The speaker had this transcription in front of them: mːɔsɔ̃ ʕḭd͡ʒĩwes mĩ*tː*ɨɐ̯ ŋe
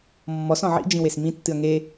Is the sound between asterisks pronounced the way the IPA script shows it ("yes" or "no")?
yes